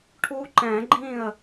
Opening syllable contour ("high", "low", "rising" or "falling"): high